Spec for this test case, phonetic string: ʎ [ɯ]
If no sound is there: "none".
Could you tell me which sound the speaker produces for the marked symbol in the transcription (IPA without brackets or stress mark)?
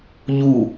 u